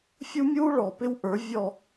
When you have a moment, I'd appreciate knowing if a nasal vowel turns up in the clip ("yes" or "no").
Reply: no